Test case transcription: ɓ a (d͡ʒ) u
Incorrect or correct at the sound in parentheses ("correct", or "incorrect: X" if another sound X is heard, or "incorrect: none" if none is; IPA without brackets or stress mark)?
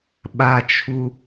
incorrect: t͡ʃʰ